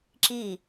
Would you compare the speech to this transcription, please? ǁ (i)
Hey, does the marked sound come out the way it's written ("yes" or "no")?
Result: yes